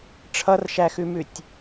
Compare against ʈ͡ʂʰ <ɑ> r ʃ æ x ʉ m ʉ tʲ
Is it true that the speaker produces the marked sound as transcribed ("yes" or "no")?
no